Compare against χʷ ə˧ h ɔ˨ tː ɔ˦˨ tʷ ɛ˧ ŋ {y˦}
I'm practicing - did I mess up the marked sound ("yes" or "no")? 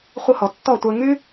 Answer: no